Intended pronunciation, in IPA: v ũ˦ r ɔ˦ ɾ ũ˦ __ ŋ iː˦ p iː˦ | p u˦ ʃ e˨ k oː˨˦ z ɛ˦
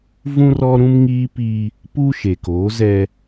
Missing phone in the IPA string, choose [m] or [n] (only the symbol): m